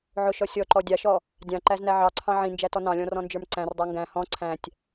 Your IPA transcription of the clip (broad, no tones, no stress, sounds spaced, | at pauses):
ʕ ʊ ʃ ɔ sʲ ɔ ǃ ɔ dʲ ɑ ʃ ɔ | dʲ ɑ̃ ǃ æ z n æ ʕ ɑ ǀʰ ɑ̃ ʕ ĩ n d͡ʒ æ t ɔ n ɑ̃ lʲ ɔ̃ r ɔ̃ n d͡ʒ ə˞ m ǀ æ̃ r dˤ ə˞ ŋ ɡ æ̃ h ɔ̃ ǀʰ æ̃ tʲ